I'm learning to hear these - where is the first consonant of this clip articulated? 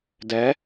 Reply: tongue tip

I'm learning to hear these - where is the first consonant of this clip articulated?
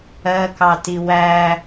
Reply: velum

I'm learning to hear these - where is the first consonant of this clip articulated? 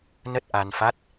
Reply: tongue tip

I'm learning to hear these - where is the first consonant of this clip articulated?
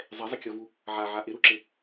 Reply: tongue tip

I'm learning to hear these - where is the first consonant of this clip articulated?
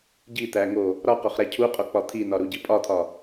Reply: palate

